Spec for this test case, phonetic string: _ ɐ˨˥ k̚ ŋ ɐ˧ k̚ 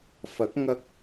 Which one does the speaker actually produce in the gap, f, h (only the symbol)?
f